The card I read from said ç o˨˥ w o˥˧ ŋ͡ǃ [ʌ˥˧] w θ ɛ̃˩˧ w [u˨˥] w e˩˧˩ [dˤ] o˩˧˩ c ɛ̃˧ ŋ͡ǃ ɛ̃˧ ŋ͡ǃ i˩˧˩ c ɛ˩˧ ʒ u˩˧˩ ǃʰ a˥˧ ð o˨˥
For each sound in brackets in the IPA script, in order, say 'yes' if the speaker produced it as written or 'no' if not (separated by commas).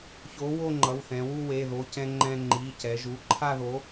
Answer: no, no, no